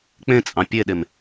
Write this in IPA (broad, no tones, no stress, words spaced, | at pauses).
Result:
k͡pẽt͡sʼɑ̃ pʲeɗem